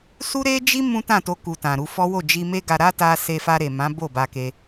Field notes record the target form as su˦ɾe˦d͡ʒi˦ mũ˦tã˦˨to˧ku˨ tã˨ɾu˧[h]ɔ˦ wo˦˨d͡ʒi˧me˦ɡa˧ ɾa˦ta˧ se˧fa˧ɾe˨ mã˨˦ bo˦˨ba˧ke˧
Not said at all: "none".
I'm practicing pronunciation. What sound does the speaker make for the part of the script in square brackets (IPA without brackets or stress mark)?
f